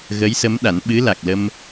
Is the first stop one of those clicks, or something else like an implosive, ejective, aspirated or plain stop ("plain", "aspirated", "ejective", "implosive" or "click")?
implosive